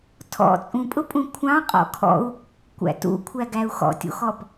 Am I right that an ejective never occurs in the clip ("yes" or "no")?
no